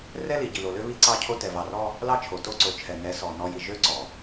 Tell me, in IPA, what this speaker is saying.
r ɛ˦ l i˨ ɟ i˨ l o˨ l ø˦ β i˦ ǀ ɑ˦˨ cʰ o˦ t ɛ˨ v ɑ˨ r ɔ˦ | l ɑ˦ t͡ʃʰ o˨ t o˦ ǀ o˨ t͡ʃʰ ɛ˨ n ɛ˨˦ s ɔ˨ n ɔ˨ j i˨ ʒ ø˦ ǀ ɔ˨

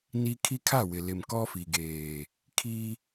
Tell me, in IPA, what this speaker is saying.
n i˦ kʰ i˦ kʰ a˦˨ w ɪ˨ l ɪ˨ m k ɔ˦ f i˨ ɡ eː˨ | kʰ i˦

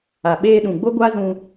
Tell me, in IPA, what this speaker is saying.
a˨ ɓ eː˧ ɗ ũ˨ ɡ͡b o˦ ɡʷ a˦ z ũ˧

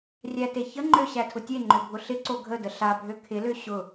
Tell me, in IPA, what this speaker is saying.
rʲ æ t e ç ə ŋ͡ǃ ø ɕ æ tʰ ʊ tʲ e ŋ͡ǃ ø bʱ ʊ ɬ ɪ ǀ o ɡʱ ə d ə ɬ a bʱ ø kʰ ɪ l ø ɕ ʊ

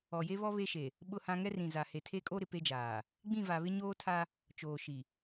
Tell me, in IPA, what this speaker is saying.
ɔ˨ j e˦ β ɔ˦ β e˦ ʃ e˨ | ɓ ʊ˦˨ h ã˦ ŋ ɛ˦ r ĩ˨ z a˨ h e˨ tʰ e˦ kʼ o˦ ɾ ɪ˨ p e˦ d͡ʒ aː˨ | ɡ͡b ĩ˦˨ v a˨ β ɪ˦ ɲ oː˦ tʰ a˦ | t͡ʃ oː˨ ʃ i˨

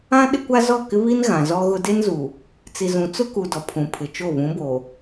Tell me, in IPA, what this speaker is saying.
ã˦ ɗ ɪ˦ kʷ a˦ z ɔ˦˨ k ɪ˦ β i˦ n ɣ ã˨ z ɔ˦ ɣ ʊ˦ d e˦ n z u˨ | t͡s i˨ z ũ˨ t͡s ʊ˦ k u˨ d ɔ˨ pʰ ũ˨ pʰ ɪ˨ t͡ʃ o˦˨ β ũ˨˦ b o˨

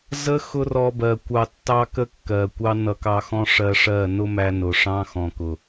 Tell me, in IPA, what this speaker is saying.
z ə˦ x ʊ˦ r ɔ˧ b ɜ˨ kʷ ɑ˧ tː ɑ˦ k ə˦ kː ɜ˨ kʷ ɑ˦ n ʌ˧ k ɑ˧ x ɔ̃˦ ʂ ɜ˧ ʂ ɜ˦˨ n ʊ˦ m æ˧ n ʊ˨ ʂ ɑ̃˦ x ɔ̃˨ k ʊ˨

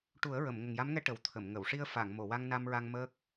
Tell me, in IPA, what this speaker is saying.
ʈ u˨˩˦ ə̯ ɹ ə˨˩˨ m ŋ ə˨˩ ŋ j a˧˥ m ŋ ɛ˧ ʈ ə˨˩ w t̪ʰ ə˨˩˨ m ŋ ə˨˩˨ w ʂ i˧ ə̯ f a˨˩˨ ŋ m o˨˩˨ w a˧ ŋ n a˧ m ɹ a˧ ŋ m əː˦˥ k̚

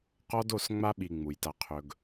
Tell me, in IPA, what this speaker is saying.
q ɔ˦ d o˦˨ s ŋ͡m a˦ ɓ i˨ ŋ͡m u˨ j t a˦ qʰ ɵ˦ ɡ

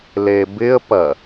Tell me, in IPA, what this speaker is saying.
l e b ɪ ə̯ p ɐ

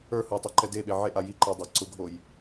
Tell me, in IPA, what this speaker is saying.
ə˞ h ʊ j tˤ ɛ ǃ ɛ d e ɓ e ʕ e ʔ a j i ǃ e dˤ a ǀ ʊ ɡʱ o j

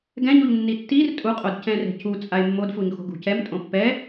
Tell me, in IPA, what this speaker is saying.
ɡ ɛ̃ ɲ u ʎ nː i tː i r tʼ u qʼ o d c ɛ̃ r e̤ c u t͡sʼ a e̯ mː o d f u ɲ x o̤ ɡ ṳ c ɛ m tʼ õ pː ɛ

